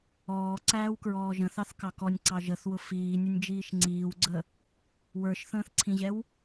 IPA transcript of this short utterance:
ɔː ǀ æː w k ɹ ɔː ʒ ə̃ θ ɑ θ k ɑ k ɔ nʲ ǀ ɑ ʒ ə θ w ʊ f iː nʲ ʊ nʲ d͡ʒ iː ʃ ŋ͡ǀ iː w ɡ͡ǀ ə | w ə˞ ʃ θ ə̃ː θ ǀʰ ĩ ʑ ɛ w

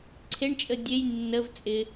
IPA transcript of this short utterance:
ǀʰ e ɳ t͡ʃʼ ə dʲ e j nː ə v t͡sʼ ɪ

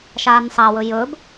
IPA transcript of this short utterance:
ʃ aː n sˤ a w ɵ j ɵ b

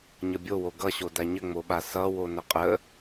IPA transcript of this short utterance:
ɲ ʌ bʲ o w o ɡ ʌ ɕ o d a ɲ ə ŋ͡m o ɓ a s ʌ w o n ə qʼ ə

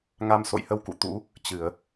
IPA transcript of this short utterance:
ŋ a˧ m s o̰˧˨ j h ə˧ w k ṵ˧˨ t̪ ṵ˧˥ | t͡ɕ ɨ˧˩˨ ə̯

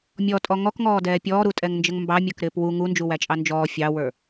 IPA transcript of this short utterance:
mʲ ɔ tʼ ɔ ŋ ɔ k ŋ ɔː d ɛː pʲ ɔː ɾ u tʼ ɛ ŋ n d͡ʒ ə ŋ m b ɑ mʲ ə˞ k ɾ ɪː p w u ŋ u n d͡ʒ u w æ t͡ʃʼ ɑ n d͡ʒ ɔː fʲ ɑ w ə˞

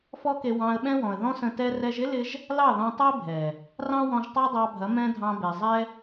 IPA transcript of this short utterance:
f ɔ˦ k e˧ w ɑ̃˧ ə̯ ɓ ɛ̃˦ w ɔ̃˨ ə̯ ð ɔ̃˦ s ə̃˧ t ɛ˧ r ɛ˧ ʒ ɪ˦ l ɪ˧ ʒ | l ɑ˦˨ ð ɔ̃˧ tˤ ɐ˦ ɪ̯ bʱ ɛ˨ | r ɑ̃˦ w ɔ̃˧ ʒ tˤ ɑ˦ dˤ ɑ˧ bʱ ɐ˨˦ m ɛ̃˧ dʱ ɑ̃˧ b e˨ zˤ ɛ˦

